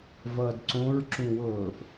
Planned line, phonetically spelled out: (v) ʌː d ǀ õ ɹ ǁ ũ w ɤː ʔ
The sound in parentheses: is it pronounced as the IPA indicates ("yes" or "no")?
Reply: yes